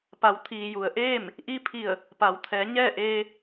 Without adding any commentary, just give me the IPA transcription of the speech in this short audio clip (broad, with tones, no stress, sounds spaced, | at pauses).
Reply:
p a˩˧ w t̪ʰ iː˩ j u˩ ə̯ ʔ eː˥˨ m | ʔ i˧ pʰ i˧˩ ə̯ | p a˩˧ w t̪ʰ ɛː˩˧ ɲ ɛː˥˨ ʔ eː˧